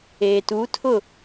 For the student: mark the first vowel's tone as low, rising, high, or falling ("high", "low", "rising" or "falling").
low